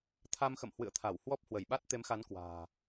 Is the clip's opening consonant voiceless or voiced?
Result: voiceless